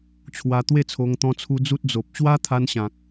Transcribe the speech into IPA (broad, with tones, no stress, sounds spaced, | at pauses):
t͡ɕʰ w a˧ t̪ w e˥˧ t͡sʰ o˧ ŋ t̪ ɔ̃˧ t͡sʰ u˧ d͡z u˦ t̚ d͡z o˨ p̚ ɕ w a˦ t̪ʰ a˧ n ɕ ã˨ k̚